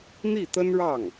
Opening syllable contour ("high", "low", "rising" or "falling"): falling